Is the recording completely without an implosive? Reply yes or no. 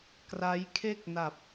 yes